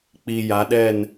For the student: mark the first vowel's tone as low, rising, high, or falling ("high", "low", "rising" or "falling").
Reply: low